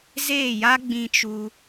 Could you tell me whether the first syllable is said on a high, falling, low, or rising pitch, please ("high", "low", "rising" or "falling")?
falling